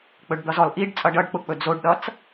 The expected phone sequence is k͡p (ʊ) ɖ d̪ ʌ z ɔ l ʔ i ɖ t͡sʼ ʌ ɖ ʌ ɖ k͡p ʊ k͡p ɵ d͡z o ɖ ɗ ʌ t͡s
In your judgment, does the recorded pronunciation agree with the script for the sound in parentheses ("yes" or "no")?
no